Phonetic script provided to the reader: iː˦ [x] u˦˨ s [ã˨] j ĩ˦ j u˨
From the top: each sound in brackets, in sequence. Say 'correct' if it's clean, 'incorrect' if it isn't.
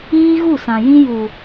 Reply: incorrect: ɣ, correct

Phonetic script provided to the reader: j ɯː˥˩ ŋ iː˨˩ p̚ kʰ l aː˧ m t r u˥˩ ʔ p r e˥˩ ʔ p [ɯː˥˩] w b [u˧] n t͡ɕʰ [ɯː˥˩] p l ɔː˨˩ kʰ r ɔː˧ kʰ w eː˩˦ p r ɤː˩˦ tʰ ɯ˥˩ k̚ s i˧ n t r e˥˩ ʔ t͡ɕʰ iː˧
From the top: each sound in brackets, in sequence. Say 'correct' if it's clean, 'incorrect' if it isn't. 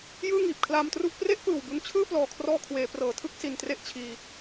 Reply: incorrect: ɯː˨˩, correct, correct

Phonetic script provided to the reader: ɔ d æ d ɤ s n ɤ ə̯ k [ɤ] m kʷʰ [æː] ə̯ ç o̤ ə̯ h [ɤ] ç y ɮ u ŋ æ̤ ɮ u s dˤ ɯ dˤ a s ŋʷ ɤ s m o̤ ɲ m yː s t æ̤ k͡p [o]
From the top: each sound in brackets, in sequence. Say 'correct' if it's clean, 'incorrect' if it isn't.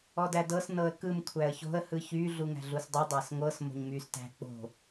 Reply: incorrect: ɯ, incorrect: æ, incorrect: ɯ, incorrect: o̤

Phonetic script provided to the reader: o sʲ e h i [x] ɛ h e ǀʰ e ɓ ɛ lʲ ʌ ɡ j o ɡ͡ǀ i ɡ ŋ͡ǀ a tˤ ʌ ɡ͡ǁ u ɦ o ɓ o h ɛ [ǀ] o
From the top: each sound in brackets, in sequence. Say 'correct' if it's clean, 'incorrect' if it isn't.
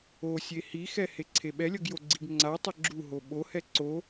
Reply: correct, correct

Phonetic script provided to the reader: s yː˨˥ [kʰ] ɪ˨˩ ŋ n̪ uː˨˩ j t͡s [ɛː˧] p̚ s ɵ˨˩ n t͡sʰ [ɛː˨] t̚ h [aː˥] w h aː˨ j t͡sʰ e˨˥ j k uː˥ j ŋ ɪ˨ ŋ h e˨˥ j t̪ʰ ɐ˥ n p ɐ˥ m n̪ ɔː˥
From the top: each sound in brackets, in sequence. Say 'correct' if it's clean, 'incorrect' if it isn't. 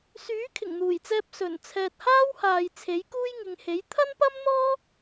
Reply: correct, correct, correct, correct

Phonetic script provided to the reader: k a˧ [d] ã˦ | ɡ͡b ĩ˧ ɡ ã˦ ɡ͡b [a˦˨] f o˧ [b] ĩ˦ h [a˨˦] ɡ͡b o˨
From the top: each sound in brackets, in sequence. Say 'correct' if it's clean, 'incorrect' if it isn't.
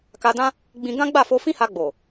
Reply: correct, correct, incorrect: f, incorrect: a˧

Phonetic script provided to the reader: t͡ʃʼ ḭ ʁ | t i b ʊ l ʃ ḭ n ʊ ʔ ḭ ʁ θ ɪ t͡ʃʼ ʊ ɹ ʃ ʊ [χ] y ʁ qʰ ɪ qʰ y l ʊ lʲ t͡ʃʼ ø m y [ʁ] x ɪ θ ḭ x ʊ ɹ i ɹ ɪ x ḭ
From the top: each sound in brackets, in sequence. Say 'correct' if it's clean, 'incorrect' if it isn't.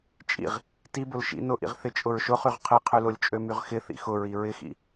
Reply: correct, correct

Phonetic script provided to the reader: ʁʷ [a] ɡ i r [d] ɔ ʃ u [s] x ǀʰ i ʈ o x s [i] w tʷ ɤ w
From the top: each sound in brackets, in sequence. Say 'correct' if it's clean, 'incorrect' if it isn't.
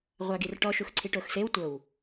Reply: correct, incorrect: ʈ, incorrect: none, incorrect: e

